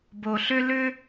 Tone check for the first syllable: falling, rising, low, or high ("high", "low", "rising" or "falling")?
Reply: low